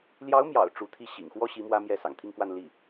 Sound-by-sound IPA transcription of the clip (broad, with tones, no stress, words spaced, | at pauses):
ljɑ˧˥ʊ̯mjɑ̰˨˩ʊ̯ ʈ͡ʂu˧˥t̪ʰi˥˩ ɕḭ˨˩ŋxwɔ˥ɕi˧˥ mwä˥mjɛ˥˩ sɑ̰˨˩ŋt̪ʰi˥˧ŋkwa˥˧n li˥˩